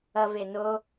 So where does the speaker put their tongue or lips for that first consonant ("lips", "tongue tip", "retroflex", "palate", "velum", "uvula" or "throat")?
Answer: lips